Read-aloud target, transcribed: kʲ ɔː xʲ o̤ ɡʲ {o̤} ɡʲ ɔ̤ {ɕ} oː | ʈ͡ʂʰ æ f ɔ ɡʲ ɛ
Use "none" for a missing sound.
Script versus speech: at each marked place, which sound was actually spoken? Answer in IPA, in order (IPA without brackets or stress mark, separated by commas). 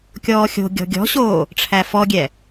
ɔ̤, ɕ